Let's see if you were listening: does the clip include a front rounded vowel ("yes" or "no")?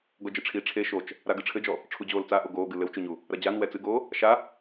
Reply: no